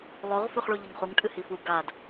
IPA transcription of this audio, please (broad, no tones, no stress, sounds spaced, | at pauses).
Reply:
lˠ o ʁ f ʉ χ ɭ u ʎ ɨ ŋ χ u ŋ tʼ ɨ h i f u ɡ a d